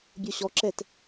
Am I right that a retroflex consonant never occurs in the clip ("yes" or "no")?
yes